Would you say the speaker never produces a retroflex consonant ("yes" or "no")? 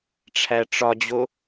no